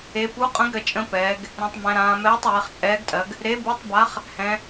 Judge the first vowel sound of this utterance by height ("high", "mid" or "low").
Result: mid